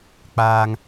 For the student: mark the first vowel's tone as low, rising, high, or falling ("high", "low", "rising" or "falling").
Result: low